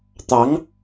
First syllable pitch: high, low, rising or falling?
rising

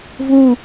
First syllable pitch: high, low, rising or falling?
falling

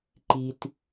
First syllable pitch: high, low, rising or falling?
low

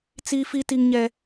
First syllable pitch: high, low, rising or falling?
high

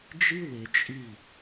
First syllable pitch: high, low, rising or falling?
high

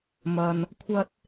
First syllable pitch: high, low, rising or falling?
low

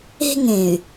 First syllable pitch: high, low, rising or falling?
high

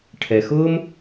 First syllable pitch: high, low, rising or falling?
low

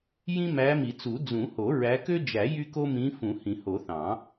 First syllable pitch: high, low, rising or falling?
high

